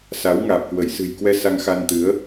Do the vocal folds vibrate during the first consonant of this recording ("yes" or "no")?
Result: no